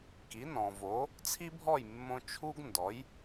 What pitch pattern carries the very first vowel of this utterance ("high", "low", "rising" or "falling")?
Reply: rising